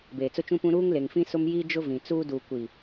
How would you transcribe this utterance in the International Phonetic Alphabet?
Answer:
beː˨t͡sʊ˦t͡ʃũ˦pũ˦ ɾuː˦ŋle˨ŋfĩ˦ sʊ˦mjiː˦ d͡ʒʊ˦vĩ˨t͡suː˦ duː˨kʷi˨

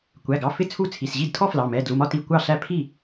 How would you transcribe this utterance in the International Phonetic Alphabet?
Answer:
kʷæ˩˧˩ɡɑ˩˧˩fɪ˥˩ t͡sʰu˥˩t͡sʰi˩˧˩s ʑi˥˩dtʰɔ˥ flɑ˩˧˩ mɛ˩˧˩dlu˩˧˩mɒ˥ti˩˧˩ kʷɑ˥˩ɬæ˥˩ pʰi˥˩

